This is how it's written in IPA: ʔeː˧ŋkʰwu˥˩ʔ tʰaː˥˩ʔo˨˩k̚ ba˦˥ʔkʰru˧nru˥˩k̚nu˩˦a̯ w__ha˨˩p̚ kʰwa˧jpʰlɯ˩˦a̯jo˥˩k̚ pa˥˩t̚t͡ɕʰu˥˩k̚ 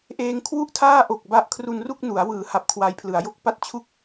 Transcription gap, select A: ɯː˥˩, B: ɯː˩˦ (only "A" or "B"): B